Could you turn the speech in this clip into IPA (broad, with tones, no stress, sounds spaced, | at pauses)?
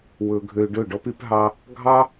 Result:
w ɵ˧ ɡʱ ø˧ ɖ ɵ˦˨ ɖ ɔ˦ p y˦ p ɦ ɑ˦ | ɡʱ ɑ˦